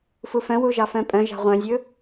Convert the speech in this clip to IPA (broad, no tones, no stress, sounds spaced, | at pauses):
f u f œ̃ w u ʒ ɑ f œ̃ pʼ œ̃ ʒ ɑ̤ ʁʷ œ̃ zʲ ɵ